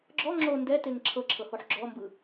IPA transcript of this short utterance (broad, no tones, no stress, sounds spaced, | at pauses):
ɡ͡ǁ ɔ ŋ͡ǁ o n d ɛ t e ŋ ǁʰ ɤ ǁʰ ɤ h o ħ ɡ͡ǁ ɔ m b ɯ